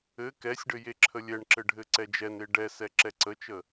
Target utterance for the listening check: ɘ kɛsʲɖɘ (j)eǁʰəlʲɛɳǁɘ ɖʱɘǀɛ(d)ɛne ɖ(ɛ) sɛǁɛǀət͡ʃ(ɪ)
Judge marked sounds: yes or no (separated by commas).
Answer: yes, no, yes, no